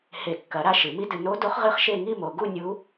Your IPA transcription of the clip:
h e˨˩˦ kː ɐ˨˩˦ ɾ a˥˨ ʃ ɨ˨˩˦ m i˦˥ d ɨ˨ n o˦˥ d o˦˥ χ ʁ ɨ˦˥ χ ʃ e˥˨ ŋ i˥˨ m o˨ ɡ u˥˨ nʲ u˦˥

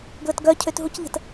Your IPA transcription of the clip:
ɡ l ə t ɡ œ cʰ ø t ɦ u c ʎ ə̤ t

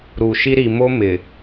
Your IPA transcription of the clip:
ɾ u˨ ʃ i˦ ɾ i˨ m o˦ m ɪ˨

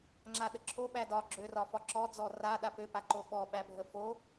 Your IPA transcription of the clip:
ŋ͡ǁ a ɗ ə ǁʰ o ɓ æ d ɒ ɡ͡ǁ ø r ɒ f ɒ ǁ ɔ d͡z ɔ r a ɗ a p ø p a ǃ o ɓ ɔ ɓ æ bʱ ə f o

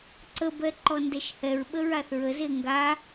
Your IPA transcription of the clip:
ǀ ə b ɛ ǃ ɔ n d ɛ ʃ h ɛ ɹ ɓ ə ɹ a θ ɹ ə z e ŋ ɡ a

